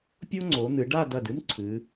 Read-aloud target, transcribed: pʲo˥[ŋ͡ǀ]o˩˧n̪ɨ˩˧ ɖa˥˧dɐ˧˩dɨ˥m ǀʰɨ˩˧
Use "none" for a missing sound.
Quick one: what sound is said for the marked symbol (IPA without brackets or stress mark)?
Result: ŋ͡ǀ